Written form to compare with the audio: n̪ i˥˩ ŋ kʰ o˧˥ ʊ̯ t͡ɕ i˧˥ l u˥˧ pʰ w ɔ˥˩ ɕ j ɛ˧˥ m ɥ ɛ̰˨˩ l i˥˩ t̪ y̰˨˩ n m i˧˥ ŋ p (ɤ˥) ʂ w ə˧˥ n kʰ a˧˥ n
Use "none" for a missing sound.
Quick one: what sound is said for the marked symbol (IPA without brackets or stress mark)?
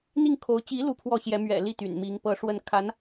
ɤ˧˥